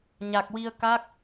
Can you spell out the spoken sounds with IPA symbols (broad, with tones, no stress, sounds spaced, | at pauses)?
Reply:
ɲ a˨˩ k̚ w i˧ ə̯ k a˦˥ k̚